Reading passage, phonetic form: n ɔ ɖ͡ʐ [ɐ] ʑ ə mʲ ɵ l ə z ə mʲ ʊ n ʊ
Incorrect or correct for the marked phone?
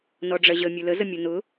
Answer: correct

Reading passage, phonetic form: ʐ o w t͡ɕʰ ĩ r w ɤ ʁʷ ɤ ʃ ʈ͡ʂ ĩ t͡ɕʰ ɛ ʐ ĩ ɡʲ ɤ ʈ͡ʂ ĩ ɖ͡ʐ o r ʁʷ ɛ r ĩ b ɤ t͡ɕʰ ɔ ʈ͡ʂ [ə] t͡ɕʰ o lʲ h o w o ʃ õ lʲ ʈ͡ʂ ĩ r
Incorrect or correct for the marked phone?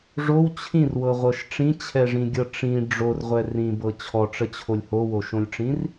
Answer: correct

